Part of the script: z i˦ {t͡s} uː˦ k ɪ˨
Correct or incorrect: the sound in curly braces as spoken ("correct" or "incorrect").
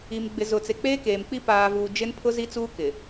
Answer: correct